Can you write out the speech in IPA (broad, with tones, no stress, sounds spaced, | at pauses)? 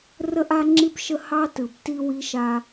r ə˦ ʔ a˦ ŋ͡ǁ i˦ b ʃ ə˦ h ɑ˦ t ɯ˨ b t i˦ w i˦ ʃ a˦